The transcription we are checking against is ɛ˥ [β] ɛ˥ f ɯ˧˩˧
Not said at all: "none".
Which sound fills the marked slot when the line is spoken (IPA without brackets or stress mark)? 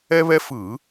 β